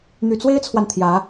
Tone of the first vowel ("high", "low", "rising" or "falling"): low